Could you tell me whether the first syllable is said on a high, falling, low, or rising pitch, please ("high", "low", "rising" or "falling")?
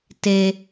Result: low